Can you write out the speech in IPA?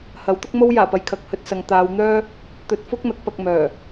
h ɐ˨˥ w t̪ ʊ˥ k̚ m o˥ w j aː˨˩ p ɐ˨ j kʰ ɐ˨ k̚ h ɵ˧ t̚ s ɐ˨ ŋ t̪ aː˨˧ w n̪ œː˥ | t̪ ɵ˧ t̚ f ʊ˥ k̚ n̪ ɐ˨˥ k̚ p ɐ˧ k̚ m œː˨˩

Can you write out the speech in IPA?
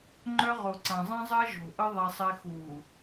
ŋ͡ǃ œ˦ ʁ o˨ ǀ ã˨ zˤ ɛ̃˦ zˤ ɜ˦ ʒ o̤˨ ʔ ʌ˦ ðˤ ɛ˦ sˤ ɛ˦ x uː˨

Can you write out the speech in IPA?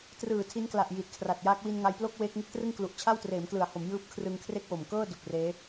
t r ɯː˨˩ tʰ i˦˥ n k l a˨˩ ʔ j i˨˩ t̚ kʰ r a˨˩ t̚ j aː˦˥ k̚ w i˧ n ŋ a˧ j p l o˥˩ k̚ w eː˦˥ k̚ ŋ ɯ˦˥ k̚ t r ɯ˥˩ ŋ k l u˨˩ ʔ t͡ɕʰ a˥˩ w t r eː˩˦ m k l ɯ˩˦ a̯ h o˩˦ m j ɯː˦˥ p̚ kʰ r ɯ˧ ŋ kʰ r e˥˩ k̚ w o˨˩ m k ɤː˥˩ d u˨˩ k̚ r eː˦˥

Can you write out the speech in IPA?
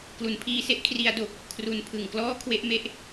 k l u˨˩ n pʰ iː˧ s e˦˥ ʔ kʰ r i˦˥ a̯ d o˨˩ k̚ | kʰ r u˧ n pʰ ɯ˨˩ ŋ k l ɔː˥˩ kʰ w e˥˩ ʔ m e˥˩ ʔ

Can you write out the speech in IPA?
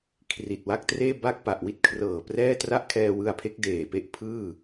kʰ r i˨˩ t̚ w a˥˩ k̚ t r eː˥˩ b a˥˩ k̚ p a˨˩ ʔ w i˥˩ t̚ kʰ r ɤː˨˩ p r ɛː˥˩ t r a˥˩ ʔ kʰ ɛː˧ w ɯ˧ a̯ pʰ e˦˥ k̚ d eː˨˩ p e˥˩ ʔ pʰ ɯː˥˩

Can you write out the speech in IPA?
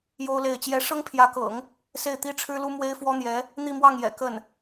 j o˥ ʊ̯ l e˥˩ ɪ̯ t͡ɕ j ɛ˥ ʂ ɤ˥ ŋ pʰ j ä˧˥ k ɤ̰˨˩˦ ŋ | s e˥˩ ɪ̯ t̪ i˥ ʈ͡ʂʰ ɻ̩˥ l u˥ m w e˥ ɪ̯ f w ɔ˥ n̪ j ɛ˧˥ | n̪ i˥˧ m w ɑ˥˩ ŋ j ɛ̰˨˩ k ə˥˩ n

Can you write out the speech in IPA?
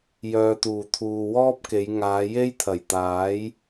j œː˨ t̪ uː˨˩ t̪ʰ uː˨ w ɔː˥ p̚ k e˨˧ j ŋ aː˨˧ j e˥ j t̪ʰ ɐ˨˩ j t̪ aː˨˥ j

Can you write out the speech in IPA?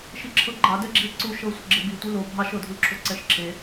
ʃ i ǁʰ ɤ ɡ͡ǃ ɑ d ɛ ɡ͡ǁ i e̯ ǀ u ʃ ɤ sʷ ə ɡ͡ǁ ɪ b i tʷ i l o bʱ ɑ ʃ ɤ dʱ u l ǁʰ o ǀ ɛ ʃ ǁʰ e

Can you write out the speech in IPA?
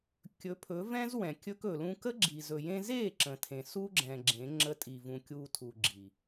kʲ ɵ˨˦ pʰ ɵ˨˦ v ɛ̃˦ z w ɛ̃˨ kʲ ɵ˧ k ɵ˨ l ũ˧ k ə˦ ɡ͡ǁ i˨ z ɵ˨ j ẽ˧ z e˦˨ ǁ ə̃˧ tʰ ẽ˧ s u˦ ɡ͡ǁ ɛ̃˨ ɡ͡ǁ ẽ˨˦ ŋ͡ǁ ə˧ tʼ i˨ v ũ˨ kʲ u˧ tʰ u˨ ɡ͡ǁ i˨

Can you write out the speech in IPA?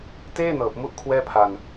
t eː˥˩ n ɤː˨˩ p̚ m u˦˥ ʔ kʰ w ɛː˥˩ pʰ a˧ n

